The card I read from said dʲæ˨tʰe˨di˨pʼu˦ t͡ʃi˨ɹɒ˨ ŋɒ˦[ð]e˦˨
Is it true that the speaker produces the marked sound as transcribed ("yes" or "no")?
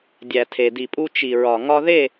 yes